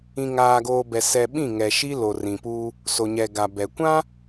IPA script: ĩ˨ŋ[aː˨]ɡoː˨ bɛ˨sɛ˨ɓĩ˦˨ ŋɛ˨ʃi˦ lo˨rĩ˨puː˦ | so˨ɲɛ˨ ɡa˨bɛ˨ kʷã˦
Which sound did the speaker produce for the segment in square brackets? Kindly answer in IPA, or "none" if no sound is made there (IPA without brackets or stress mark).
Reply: aː˨